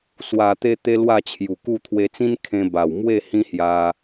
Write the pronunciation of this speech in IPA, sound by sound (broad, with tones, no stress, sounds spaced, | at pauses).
s w a˨˩ t̪ e˧ t̪ e˧ l w a˥˧ t͡ɕʰ j u˨˩ k u˥˧ t̪ʰ w e˧ t͡s ĩ˦ n kʰ ẽ˧ b a˨˩ w m w e˥˧ h ĩ˦ h j a˧